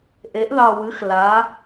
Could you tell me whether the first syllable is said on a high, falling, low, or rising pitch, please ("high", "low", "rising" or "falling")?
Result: rising